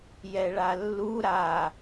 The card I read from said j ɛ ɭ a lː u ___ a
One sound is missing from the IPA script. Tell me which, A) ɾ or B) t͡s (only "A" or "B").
A